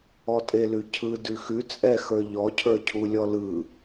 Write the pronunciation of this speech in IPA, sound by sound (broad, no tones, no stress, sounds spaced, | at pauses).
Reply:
ɔ tʼ e l ʉ cʰ ɯ d ʉ x ʉ t͡sʼ ɛ x ə˞ ʎ ɔ cʰ ə˞ cʰ u lʲ ɔ l ɯ